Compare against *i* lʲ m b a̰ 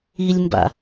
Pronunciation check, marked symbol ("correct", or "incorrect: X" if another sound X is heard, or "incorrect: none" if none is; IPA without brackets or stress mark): correct